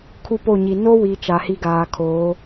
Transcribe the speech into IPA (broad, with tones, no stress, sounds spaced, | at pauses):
kʰ u˦ p o˦˨ ɲ i˨ n o˦ w i˨ t͡ʃ a˨ h i˦ ɡ aː˨ kʰ oː˨˦